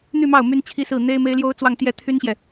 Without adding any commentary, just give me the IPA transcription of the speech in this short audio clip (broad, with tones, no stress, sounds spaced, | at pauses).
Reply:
n̪ y˥˧ m ɑ˥˩ ʊ̯ m y˥ n t͡ɕʰ i˥ s ɹ̩˥˩ n̪ e˥ ɪ̯ m e˥ ɪ̯ l j o˥ ʊ̯ t͡s w ɑ˥˧ ŋ t̪ j ɛ˥˩ t̪ʰ y˥ n ɕ j ɛ˨